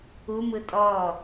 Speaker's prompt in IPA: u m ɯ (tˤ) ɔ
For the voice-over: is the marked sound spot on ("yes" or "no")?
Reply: no